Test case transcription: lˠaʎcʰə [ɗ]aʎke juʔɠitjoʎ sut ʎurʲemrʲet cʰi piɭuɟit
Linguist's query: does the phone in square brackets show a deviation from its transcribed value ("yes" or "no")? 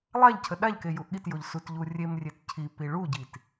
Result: no